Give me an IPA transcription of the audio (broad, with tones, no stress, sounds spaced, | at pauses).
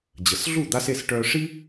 d͡ʑ ə˩ s ɮ u˥˩ d̪ a˧ s e˥˩ s ʈ œ˧ ʂ i˥